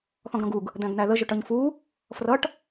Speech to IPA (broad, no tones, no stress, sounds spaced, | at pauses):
θ ɔ̃ ɡ ɾ ɔ̃ ɡ u ɡ | d̪ æ̃ ɡ n̪ æ ð ə ʒ ʊ ʈ ʌ ɲ f u | f r ʌ ʈ